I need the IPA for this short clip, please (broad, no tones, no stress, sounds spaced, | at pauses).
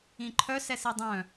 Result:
ĩ ǃʰ œ s ɛ s i dˤ œ̃